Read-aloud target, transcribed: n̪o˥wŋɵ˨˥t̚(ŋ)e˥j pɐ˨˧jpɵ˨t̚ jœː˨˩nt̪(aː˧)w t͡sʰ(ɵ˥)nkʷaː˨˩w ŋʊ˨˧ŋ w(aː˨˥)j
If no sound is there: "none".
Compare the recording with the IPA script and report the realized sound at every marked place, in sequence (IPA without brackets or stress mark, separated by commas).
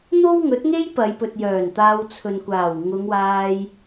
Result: ŋ, aː˧, ɵ˨, aː˧